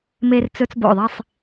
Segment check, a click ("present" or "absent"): absent